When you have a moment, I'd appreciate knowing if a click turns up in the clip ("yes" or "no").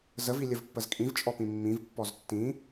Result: no